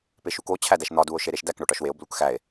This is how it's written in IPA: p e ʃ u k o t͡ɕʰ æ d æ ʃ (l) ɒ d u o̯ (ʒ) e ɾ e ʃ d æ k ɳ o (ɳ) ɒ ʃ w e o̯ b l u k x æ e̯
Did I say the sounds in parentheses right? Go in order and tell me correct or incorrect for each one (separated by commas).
incorrect, incorrect, incorrect